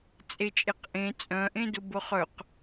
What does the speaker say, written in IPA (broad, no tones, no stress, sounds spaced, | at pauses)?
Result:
t͡sʼ e t͡ʃʼ e q ʔ ẽ t͡sʼ œ̃ ʔ ẽ d ʊ b ʊ χ œ q